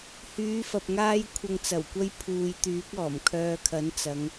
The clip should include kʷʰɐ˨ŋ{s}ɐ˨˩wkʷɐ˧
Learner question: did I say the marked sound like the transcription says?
no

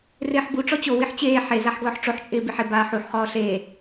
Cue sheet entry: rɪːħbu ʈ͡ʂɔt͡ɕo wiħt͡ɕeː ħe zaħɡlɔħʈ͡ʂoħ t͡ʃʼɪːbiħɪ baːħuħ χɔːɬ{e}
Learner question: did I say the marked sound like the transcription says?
no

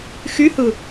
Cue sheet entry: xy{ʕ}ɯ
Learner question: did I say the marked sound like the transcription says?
no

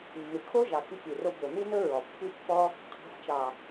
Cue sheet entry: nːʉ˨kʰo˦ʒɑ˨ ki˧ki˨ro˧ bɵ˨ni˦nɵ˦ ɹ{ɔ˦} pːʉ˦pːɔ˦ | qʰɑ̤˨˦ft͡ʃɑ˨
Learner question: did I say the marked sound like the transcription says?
no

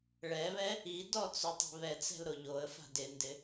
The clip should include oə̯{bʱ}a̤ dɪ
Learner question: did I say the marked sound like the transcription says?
no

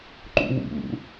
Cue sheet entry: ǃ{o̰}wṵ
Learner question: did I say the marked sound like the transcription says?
no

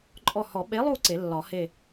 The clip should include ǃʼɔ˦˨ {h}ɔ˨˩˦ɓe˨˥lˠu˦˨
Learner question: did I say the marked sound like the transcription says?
yes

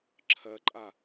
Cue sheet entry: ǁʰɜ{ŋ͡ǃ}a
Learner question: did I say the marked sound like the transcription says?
no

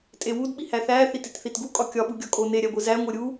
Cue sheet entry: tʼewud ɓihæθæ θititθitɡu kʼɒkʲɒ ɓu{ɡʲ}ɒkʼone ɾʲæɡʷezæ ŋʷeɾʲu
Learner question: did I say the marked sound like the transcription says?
yes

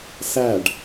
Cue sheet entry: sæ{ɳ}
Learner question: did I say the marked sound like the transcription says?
no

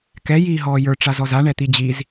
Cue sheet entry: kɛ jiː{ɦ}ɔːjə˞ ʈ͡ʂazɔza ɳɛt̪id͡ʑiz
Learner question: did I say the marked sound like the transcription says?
yes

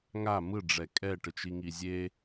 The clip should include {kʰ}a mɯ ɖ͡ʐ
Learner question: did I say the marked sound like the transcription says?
no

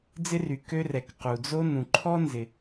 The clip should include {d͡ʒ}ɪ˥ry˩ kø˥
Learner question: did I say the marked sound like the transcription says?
no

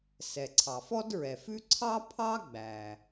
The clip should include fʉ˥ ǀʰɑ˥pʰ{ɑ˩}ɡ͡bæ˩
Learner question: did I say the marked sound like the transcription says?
no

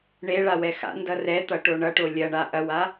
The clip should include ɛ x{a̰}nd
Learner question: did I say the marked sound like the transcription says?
yes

